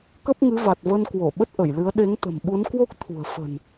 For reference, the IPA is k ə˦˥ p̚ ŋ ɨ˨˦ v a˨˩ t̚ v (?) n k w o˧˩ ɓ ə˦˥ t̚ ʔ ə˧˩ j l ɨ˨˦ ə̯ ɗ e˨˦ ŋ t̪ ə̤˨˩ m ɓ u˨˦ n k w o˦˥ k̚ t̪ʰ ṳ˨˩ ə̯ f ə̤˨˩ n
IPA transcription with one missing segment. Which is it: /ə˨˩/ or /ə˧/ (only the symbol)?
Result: ə˧